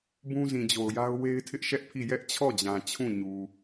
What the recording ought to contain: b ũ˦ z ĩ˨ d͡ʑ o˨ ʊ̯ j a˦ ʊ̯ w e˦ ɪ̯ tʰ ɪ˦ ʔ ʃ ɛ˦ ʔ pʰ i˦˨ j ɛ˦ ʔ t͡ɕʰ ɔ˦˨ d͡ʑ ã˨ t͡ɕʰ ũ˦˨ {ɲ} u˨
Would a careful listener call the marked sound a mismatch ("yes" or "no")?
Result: no